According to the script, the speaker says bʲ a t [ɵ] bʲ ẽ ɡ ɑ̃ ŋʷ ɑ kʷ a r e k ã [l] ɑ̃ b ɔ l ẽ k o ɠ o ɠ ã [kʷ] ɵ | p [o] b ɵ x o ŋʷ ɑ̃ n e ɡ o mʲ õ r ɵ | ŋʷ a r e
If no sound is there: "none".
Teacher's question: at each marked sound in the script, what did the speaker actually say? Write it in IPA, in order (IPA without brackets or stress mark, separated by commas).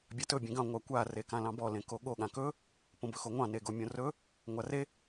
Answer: ɵ, l, k, õ